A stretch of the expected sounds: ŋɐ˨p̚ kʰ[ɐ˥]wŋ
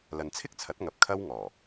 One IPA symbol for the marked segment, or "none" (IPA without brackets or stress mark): ɐ˥